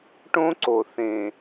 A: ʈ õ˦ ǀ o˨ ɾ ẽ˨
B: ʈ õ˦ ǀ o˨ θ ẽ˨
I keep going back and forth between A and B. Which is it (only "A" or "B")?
B